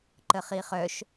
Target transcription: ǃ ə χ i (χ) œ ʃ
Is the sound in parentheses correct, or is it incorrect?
correct